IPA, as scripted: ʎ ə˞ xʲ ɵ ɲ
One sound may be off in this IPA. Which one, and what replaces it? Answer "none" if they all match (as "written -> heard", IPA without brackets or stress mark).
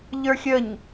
ɵ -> ə